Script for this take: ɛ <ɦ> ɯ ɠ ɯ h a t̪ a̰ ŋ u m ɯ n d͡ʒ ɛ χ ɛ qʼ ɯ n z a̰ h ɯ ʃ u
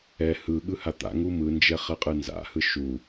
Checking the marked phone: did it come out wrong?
yes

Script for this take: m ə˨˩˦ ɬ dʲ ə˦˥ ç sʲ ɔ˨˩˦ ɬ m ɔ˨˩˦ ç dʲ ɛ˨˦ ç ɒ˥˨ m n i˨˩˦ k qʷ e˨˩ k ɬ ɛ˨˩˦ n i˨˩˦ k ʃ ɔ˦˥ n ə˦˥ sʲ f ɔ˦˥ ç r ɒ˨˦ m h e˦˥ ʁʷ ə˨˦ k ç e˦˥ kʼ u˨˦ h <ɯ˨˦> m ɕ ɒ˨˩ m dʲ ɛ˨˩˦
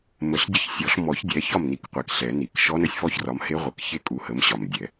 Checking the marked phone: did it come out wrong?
yes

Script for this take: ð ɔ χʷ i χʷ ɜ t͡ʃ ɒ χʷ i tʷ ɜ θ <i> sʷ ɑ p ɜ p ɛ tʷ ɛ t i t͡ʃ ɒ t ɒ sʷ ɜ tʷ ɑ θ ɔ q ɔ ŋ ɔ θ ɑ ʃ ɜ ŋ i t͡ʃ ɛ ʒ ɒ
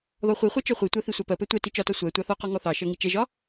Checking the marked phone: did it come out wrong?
no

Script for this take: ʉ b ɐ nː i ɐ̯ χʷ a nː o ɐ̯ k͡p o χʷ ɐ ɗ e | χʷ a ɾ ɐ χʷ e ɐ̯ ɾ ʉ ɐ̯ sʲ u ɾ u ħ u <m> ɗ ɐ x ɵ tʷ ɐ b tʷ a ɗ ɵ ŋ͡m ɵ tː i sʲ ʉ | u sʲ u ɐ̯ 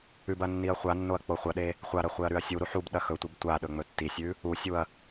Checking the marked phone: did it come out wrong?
yes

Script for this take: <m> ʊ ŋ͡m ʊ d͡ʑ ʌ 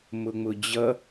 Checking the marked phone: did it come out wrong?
no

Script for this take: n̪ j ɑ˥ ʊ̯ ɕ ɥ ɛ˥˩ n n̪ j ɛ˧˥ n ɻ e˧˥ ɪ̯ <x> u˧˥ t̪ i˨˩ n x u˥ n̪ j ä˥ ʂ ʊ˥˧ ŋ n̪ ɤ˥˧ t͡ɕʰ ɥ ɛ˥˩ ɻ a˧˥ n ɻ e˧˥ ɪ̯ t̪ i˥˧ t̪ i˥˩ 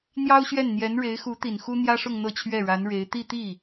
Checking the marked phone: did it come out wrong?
no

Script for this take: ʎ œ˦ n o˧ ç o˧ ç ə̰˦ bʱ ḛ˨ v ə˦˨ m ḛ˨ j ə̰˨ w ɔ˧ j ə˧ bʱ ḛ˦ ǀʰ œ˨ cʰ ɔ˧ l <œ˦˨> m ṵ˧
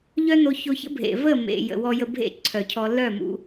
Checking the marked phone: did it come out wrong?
no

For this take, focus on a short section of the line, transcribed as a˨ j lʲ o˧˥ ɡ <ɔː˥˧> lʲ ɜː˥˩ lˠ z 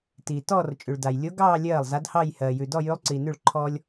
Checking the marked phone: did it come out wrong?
yes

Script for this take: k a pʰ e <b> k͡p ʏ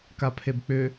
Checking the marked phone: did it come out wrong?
no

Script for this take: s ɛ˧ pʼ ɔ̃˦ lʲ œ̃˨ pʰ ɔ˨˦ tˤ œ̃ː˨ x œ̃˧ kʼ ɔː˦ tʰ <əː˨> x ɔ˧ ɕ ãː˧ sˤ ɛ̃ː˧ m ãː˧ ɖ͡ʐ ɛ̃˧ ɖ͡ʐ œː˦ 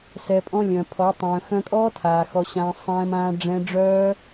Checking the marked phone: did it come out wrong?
yes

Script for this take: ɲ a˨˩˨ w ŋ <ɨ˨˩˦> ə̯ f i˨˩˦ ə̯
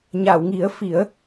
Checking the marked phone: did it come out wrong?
yes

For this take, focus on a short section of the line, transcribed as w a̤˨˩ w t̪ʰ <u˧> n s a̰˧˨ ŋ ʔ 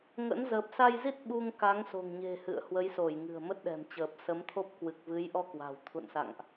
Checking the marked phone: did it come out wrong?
yes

